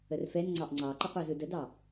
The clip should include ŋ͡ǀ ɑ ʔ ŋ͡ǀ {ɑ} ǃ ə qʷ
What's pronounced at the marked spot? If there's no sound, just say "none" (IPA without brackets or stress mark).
ɑ